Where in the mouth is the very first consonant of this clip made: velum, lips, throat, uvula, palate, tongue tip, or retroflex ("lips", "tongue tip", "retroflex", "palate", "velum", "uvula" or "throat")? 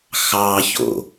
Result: velum